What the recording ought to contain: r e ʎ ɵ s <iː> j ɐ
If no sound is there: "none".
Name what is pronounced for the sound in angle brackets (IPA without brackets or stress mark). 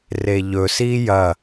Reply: iː